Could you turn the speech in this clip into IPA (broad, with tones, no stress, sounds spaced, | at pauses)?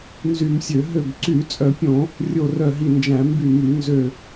n z y˧˩˧ m sʲ ø˧˩˧ ɦ ø˧˩ b ǀ y˧˩˧ t͡sʼ œ˧˩˧ pʲ õ˧˩˧ | rʲ o˧˩ r œ˧˩ ɦ i˧˩ n d͡ʒ æ̃˧˩˧ m b y˧˩ m y˧˩˧ n z ø˧˩